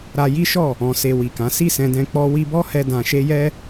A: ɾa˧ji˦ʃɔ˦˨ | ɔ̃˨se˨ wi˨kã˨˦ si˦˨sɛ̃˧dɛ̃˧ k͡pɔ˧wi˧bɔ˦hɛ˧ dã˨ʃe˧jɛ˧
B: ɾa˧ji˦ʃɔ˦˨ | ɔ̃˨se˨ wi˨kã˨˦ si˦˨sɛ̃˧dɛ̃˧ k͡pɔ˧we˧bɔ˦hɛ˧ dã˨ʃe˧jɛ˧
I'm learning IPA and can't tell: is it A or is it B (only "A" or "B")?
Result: A